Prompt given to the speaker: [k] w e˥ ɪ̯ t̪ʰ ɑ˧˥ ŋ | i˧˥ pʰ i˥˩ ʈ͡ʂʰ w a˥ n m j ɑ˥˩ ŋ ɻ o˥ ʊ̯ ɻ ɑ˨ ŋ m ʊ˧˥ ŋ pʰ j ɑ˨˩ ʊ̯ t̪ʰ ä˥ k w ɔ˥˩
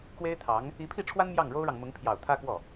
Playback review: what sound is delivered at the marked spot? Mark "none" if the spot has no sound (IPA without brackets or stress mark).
k